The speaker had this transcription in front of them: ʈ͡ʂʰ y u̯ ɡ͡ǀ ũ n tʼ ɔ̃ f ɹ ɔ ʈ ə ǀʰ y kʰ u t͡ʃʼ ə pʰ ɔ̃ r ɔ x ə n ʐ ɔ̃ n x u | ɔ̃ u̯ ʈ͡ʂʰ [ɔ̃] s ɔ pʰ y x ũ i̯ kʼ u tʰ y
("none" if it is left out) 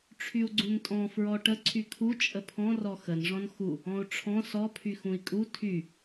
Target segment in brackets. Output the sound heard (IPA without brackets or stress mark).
ɔ̃